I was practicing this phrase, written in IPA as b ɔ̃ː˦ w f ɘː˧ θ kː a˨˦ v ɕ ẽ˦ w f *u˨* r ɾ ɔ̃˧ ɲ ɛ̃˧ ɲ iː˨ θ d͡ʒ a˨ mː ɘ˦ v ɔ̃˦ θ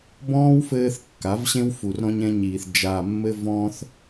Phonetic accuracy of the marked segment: correct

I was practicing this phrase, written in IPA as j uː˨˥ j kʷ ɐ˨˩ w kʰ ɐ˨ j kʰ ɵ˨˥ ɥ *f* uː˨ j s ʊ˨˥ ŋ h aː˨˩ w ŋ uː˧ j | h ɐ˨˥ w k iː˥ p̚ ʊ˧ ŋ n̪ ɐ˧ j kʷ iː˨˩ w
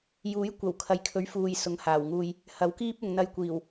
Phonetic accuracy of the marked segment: correct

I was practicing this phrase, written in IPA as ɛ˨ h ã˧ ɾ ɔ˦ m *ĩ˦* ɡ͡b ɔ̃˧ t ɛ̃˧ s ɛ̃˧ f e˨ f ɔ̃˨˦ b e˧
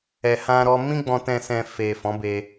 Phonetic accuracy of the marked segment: correct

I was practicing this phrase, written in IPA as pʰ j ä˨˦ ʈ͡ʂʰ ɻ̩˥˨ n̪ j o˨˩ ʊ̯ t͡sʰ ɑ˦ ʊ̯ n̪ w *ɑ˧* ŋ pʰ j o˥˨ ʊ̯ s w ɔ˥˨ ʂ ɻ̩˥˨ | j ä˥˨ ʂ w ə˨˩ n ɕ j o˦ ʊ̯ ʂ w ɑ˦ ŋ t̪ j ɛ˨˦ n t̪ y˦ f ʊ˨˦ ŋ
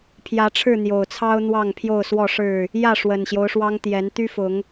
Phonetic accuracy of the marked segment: incorrect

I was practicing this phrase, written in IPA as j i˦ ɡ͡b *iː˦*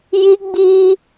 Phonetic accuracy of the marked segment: correct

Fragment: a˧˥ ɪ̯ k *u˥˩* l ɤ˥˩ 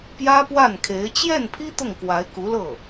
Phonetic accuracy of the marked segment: incorrect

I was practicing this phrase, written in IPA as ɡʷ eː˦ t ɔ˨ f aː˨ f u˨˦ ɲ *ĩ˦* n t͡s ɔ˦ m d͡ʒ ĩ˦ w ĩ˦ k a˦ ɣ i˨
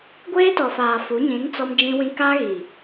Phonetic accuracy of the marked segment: incorrect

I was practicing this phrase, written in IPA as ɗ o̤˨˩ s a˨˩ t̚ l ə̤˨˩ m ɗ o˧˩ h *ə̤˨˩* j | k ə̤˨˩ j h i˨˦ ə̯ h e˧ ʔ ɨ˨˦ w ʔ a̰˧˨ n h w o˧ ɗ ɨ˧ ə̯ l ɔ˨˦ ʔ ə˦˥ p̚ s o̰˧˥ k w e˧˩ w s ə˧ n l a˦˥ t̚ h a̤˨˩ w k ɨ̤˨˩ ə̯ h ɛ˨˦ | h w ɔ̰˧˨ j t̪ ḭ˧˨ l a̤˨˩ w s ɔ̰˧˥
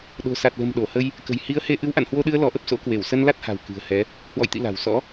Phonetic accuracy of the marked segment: incorrect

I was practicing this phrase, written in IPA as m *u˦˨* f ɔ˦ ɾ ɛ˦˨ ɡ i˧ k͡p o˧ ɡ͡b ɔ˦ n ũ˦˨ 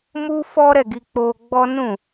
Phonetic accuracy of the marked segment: incorrect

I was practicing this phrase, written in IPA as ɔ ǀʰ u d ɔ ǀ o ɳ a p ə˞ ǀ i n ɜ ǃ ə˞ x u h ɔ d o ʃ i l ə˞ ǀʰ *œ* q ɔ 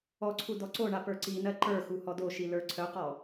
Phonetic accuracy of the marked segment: correct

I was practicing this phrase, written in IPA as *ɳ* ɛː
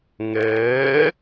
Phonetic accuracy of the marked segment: incorrect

